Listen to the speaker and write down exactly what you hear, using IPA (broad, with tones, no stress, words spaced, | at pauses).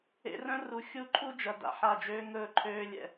ḛ˧rœ̃˦ ru˧ xʲu˦˨ǃʰu˦d͡ʒɐ˨ da̰˨ħa˦˨d͡ʒøː˦ ŋɵː˦ǃʰøː˦ lʲɛ̰˧